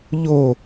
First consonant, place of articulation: palatal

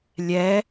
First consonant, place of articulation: alveolar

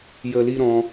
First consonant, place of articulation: palatal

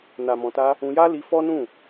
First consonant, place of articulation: alveolar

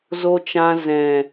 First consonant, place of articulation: alveolar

